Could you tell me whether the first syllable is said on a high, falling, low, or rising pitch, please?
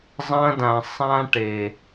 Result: high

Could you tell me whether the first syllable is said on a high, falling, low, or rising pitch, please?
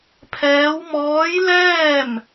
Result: rising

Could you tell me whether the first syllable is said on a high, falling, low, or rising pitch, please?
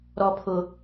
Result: high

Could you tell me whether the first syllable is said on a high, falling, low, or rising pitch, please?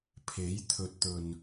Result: rising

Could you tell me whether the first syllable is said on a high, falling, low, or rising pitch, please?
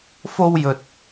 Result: high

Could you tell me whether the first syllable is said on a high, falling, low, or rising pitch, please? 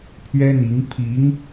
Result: high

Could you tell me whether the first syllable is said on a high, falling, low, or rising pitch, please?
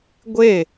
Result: falling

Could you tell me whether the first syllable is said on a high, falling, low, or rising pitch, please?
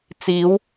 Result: rising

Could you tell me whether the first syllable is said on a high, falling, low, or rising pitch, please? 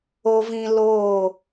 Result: low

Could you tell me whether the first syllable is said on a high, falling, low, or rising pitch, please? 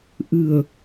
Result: low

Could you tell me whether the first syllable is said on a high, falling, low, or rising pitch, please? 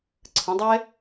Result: rising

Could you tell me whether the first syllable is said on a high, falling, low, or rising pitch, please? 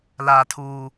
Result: high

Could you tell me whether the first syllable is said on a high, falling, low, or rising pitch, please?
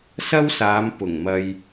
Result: high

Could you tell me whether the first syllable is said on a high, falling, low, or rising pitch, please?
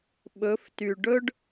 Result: rising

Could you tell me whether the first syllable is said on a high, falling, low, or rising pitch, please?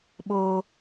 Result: high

